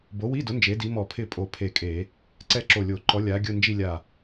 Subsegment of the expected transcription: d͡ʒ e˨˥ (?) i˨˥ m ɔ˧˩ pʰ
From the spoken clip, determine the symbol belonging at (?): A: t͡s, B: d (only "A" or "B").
B